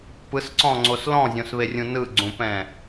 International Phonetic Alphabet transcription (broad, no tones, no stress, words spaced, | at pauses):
pɯsǀɔ̃ŋ͡ǀos lɔ̃zʲõsβerʲũ nɯɡ͡ǀũpɛ̃